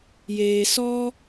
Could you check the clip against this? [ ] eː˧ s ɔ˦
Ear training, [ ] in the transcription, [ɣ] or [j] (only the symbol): j